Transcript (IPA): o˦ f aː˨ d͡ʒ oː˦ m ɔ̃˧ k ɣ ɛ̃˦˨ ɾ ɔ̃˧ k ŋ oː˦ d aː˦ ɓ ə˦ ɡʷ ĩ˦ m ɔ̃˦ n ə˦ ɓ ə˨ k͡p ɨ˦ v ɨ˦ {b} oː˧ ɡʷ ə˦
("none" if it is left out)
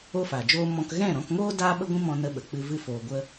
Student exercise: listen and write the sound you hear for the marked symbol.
f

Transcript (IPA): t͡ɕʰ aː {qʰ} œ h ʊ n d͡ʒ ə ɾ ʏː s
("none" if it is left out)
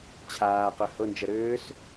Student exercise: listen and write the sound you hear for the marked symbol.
q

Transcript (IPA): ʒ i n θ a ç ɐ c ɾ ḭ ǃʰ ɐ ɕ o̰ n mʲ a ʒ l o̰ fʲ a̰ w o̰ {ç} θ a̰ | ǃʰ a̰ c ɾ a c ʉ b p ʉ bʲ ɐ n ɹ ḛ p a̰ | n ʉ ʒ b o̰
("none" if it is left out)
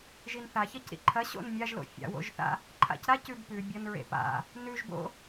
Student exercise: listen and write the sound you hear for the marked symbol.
ʒ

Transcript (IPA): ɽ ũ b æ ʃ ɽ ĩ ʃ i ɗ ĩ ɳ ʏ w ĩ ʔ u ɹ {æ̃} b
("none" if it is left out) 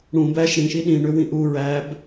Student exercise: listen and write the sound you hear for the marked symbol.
æ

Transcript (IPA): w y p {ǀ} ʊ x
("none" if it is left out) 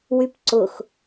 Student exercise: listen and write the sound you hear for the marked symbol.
ǀ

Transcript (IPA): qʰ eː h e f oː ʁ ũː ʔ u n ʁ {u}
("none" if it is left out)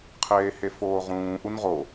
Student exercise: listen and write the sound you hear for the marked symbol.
o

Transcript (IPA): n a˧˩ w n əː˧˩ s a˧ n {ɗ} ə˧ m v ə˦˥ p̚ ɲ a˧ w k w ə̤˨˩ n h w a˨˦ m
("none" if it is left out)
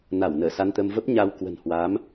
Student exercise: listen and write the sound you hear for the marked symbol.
t̪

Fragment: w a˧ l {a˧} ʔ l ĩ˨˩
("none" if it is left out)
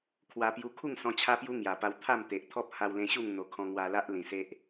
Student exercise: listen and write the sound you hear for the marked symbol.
a˦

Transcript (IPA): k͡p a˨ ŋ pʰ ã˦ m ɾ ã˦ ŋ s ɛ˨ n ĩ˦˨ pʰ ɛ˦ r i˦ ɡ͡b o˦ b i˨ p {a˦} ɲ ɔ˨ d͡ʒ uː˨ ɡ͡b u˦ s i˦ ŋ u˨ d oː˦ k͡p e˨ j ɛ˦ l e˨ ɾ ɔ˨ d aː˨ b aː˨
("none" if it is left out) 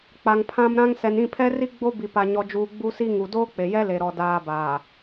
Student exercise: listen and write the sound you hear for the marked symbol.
a˨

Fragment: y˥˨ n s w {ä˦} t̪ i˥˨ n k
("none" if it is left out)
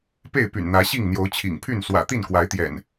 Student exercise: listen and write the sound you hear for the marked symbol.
ä̰˨˩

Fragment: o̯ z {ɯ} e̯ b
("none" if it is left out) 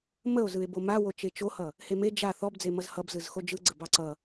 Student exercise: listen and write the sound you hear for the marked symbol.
ɯ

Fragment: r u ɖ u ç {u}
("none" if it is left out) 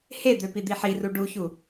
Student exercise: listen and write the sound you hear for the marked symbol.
u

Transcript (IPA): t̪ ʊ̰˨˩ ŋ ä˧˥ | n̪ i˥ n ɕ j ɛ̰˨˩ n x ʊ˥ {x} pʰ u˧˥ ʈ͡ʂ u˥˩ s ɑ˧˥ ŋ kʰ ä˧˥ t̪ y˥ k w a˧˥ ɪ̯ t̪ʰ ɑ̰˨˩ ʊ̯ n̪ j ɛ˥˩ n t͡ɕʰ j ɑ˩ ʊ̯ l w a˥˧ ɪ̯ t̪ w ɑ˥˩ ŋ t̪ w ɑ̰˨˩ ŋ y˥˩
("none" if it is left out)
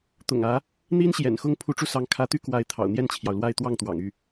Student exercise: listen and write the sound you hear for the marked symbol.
ŋ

